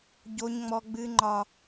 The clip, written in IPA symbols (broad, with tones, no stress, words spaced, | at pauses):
ɟo˦ɲŋ͡mɔ˦ɡ͡bɨ˦ ŋ͡ǃɒ˦